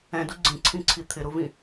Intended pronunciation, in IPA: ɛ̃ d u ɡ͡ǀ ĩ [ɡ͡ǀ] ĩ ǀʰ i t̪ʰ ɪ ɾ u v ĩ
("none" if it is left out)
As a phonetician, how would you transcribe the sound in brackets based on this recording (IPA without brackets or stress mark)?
ǀʰ